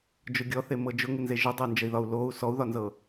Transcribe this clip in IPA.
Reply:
d͡ʒ ʊ ɡʲ ɔ θ e m ɤ d͡ʒ ʊ ŋ ɪ n z e ʒ ʊ dˤ ɪ u̯ n d͡ʒ ə i̯ ð ɒ u̯ l o u̯ s ɔ u̯ ð ɒ n z ɤ

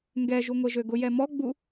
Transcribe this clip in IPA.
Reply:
ŋ ɡ ɛ ʒ u ŋʷ e ʒ ø ɡ ʊ j ɛ m ɔ ɡ͡b u

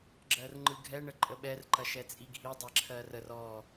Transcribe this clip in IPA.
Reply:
ɡ͡ǁ ɜ r ŋ͡ǃ ɯ ɡʱ ɛ ɳ ə ǃʼ ə ɓ ɛ r ǃ ɐ ʃ ɛ t͡sʼ i ɡʱ i dˤ ɛ ǁʰ ɜ r ə r ɔ

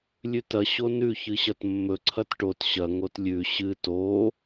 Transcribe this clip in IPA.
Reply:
lʲ ʉ t ɐ ɕ o n ʉ ç ɨ ɕ ɐ t mː ɵ ǀʰ ɐ t ʈ o t ɕ ɐ ŋ o t lʲ ʉ ɕ ɨ t o

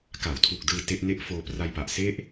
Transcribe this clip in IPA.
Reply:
k a˩˦ w tʰ u˨˩ k̚ d ɯː˧ t e˦˥ ʔ n e˦˥ ʔ f oː˧ p r a˧ j p a˨˩ ʔ s e˦˥ ʔ

